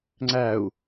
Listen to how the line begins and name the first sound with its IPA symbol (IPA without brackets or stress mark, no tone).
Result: ŋ͡ǀ